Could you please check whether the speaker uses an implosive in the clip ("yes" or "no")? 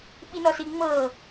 yes